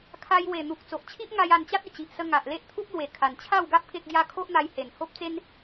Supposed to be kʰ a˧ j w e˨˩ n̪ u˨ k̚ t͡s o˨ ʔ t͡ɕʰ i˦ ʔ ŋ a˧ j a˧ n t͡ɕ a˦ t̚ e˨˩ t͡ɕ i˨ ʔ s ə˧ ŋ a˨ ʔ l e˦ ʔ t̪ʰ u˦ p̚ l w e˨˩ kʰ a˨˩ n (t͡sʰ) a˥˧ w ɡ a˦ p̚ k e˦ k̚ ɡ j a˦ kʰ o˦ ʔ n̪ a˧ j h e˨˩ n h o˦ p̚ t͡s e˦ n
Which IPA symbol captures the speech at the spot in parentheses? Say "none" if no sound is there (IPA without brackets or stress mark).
t͡ɕʰ